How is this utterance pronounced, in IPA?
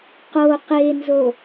q o q e n z o

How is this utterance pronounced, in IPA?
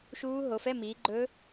ʃ uː˦˥ ɦ o˨˦ f ɛ˧˥˧ m iː˨˦ ɡ͡ǃ ɵ˦˥

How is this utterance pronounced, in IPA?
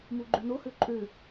m u ɡ͡ǃ ʉ n o h ø ǃʼ ø

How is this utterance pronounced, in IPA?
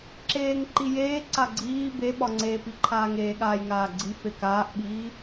ǁ eː ŋ ǃ i j eː ǀ a ɡ͡ǀ iː b e ɓ ɒ ŋ͡ǀ eː p i ǃʰ aː ŋ eː ɠ aː j ŋ aː ɡ͡ǀ i f e k aː ʔ ɓ iː

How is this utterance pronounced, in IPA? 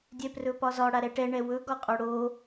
dʲ ɛ p r ɵ p ɒ z ɒ ɽ a ɾ ɛ ʈ ɛ ɳ ɛ w ɵ ɡ ɒ qʼ o ɽ o

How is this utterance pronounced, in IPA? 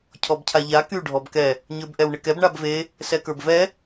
cʰ ɔ b cʰ a ʎ a k y ɖʱ ɔ b k ɛ | ɲ ə˞ b ʔ ɛ w ɳ ɪ k ɛ b ɳ a b v e | s ɛ k ə˞ b v ɛ

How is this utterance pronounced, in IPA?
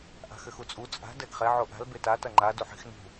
ʔ a̤ x ɘ x u t͡sʼ u t͡sʼ a̤ d ɛ ɡ χ ɛ ʕ o ʔ a̤ l b e t a t ɐ ŋ͡ǃ a d u ħ i̤ x n ṳ

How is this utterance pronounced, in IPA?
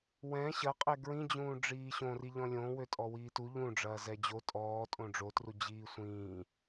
w ɛ̃ ɕ ɐ qʼ ɛ ɡ ɹ ĩ d͡ʑ ũː ɖ͡ʐ iː ɕ õ r i ʎ ɔ̃ lʲ õ w ø tʼ ɔ w iː t u ʎ ũ ɖ͡ʐ ɐː z ɛ d͡ʑ o tʼ ɔː tʼ õ ɖ͡ʐ o t r u d͡ʑ iː sʷ ĩː

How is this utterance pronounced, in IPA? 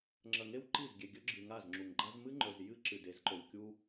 ŋ͡ǁ ɐ˨ ŋ e˦ w ǃ i˦˨ z ɡʲ e˨ ɡʲ ɵ˦ ɡ͡ǁ ɨ˨ ŋ a˦˨ z ŋ͡ǁ u˨ ŋ ɡ͡ǃ a˦ z m ɨ˦ ŋ͡ǃ ɵ˨ z j ɨ˦ ǁ ɨ˨ d e˨˦ z ǃ o˨ w kʲ u˦

